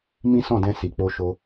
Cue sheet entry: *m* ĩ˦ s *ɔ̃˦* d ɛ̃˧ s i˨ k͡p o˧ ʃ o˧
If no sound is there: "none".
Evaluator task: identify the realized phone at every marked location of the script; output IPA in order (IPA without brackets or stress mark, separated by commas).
m, ɔ̃˦˨